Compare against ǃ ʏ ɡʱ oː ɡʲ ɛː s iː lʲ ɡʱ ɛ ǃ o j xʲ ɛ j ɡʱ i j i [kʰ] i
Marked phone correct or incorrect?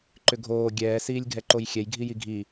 incorrect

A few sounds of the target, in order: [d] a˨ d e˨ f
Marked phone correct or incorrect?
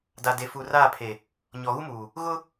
correct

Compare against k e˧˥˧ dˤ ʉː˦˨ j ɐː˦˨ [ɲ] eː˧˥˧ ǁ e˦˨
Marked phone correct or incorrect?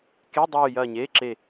correct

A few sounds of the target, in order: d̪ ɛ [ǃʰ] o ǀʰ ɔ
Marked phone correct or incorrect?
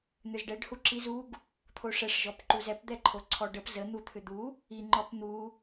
correct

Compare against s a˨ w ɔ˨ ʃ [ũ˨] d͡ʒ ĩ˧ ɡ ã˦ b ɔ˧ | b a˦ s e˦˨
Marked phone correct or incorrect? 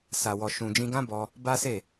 correct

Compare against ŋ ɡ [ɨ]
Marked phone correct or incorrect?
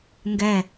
incorrect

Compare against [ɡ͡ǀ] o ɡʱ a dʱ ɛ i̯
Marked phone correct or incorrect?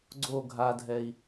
correct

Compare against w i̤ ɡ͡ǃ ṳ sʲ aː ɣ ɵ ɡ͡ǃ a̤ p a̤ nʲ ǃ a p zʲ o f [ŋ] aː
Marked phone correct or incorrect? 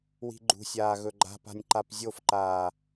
incorrect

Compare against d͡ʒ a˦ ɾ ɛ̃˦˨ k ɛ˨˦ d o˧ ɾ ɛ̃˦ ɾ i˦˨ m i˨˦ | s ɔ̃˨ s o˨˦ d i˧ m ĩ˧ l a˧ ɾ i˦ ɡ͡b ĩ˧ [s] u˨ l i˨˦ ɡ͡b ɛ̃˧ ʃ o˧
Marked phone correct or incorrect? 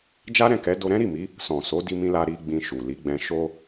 incorrect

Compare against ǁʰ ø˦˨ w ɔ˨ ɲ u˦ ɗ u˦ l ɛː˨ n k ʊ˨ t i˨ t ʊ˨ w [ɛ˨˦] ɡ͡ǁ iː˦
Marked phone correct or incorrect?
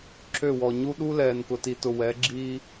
correct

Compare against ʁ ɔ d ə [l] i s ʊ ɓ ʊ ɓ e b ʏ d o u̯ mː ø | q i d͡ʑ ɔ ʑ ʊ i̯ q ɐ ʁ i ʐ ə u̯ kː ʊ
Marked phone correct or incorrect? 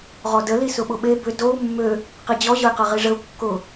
correct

